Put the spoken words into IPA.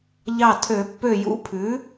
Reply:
ʎ ɑ˧˩ tʰ ø˨˩˦ pː ø˧˩ j ṵ˧˥ pʰ ʉ˩˥

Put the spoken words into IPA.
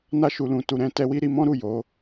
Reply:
n a˧ ʃ u˨ l ũ˨ t u˨ ɾ ɛ̃˨˦ t ɛ˧ w i˦ ɾ i˧ m ɔ̃˦ ɾ u˦˨ j o˨˦

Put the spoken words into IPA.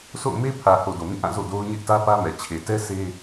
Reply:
sʰ o̰˦˨ ʊ̯ m e˦ pʰ ä˨ h o˨ d o˨ m ĩ˦˨ ʔ ã˦˨ z o̰˦˨ d o˦ ʊ̯ ɲ ɪ˦ ʔ t ä˦ p ä˦ m ɛ˨ t͡ɕʰ e˨ t ɛ˦ s e˦

